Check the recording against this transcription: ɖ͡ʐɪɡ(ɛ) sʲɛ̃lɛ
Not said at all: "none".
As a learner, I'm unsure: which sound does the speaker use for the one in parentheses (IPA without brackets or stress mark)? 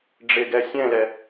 ɛ